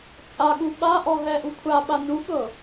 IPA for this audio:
t͡sʼaɠu ɓaʔɔ ɦɛʔukʷʰa ɓanuɠɤ

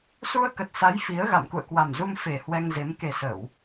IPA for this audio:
su˧ə̯kə˨˩t̚sa˨˦j fi˨˦ə̯ ɣa̰˧˨mkṵ˧˨ə̯kwa˨˩mzu˧m fe˨˩ hwɛ˧ŋze˨˦m ke˨˩sə˧˩˨w

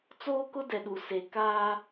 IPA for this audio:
t͡soː˦kʊ˦dɛ˨ɗu˨ se˨ kaː˦

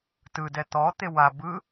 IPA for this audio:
tɯdɛ t̪ɔt̪e wa bɯ

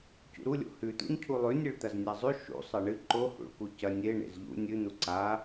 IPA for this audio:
cṵɾulʲo̰ hʉt̪ṵɲ cʰulˠʉ nʲɨɭt̪ɐznʲazˤʉ ʃṵ sˤɐɳɨ ǃohṵɭku cɐ nʲe ɳḛzʎṵ nʲɨ n̪uǀa

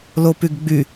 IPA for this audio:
lopyɡɡ͡by

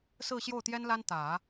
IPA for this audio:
sɹ̩˥˧ɕjo˥˩ʊ̯t̪jɛ˥nla˥n t̪ä˨˩˦

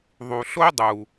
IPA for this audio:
ðˤu˨ɬo˦dˤu˨

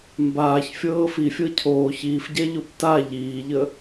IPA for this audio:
mbaːç fʲɤːfi fʲɤcʰoː çiːf ɟɛʎopta ʎiːʎə

